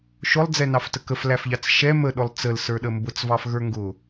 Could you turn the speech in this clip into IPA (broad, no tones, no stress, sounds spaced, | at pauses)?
ʃ ʊ lˠ d͡z ɛ n ɑ f t ə k ə f l æ f ʎ ɑ t͡s ʃ ɛ m ə ɗ ʊ lˠ t͡s ə l s ə˞ ɗ ə m b ʊ t͡s v ɑ f ɣ ə˞ ŋ ɡ ʊ